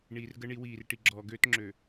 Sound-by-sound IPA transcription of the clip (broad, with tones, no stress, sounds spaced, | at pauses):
ɳ iː˨ r ɡ ə˦ ɳ i˨˦ w iː˨ r ʈ i˨ ɡ͡ǁ ɔː˨ ɡ øː˦ t ŋ͡ǁ ø˨